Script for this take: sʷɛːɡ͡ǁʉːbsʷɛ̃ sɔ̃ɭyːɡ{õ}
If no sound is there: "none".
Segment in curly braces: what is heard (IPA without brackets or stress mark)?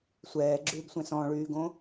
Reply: õ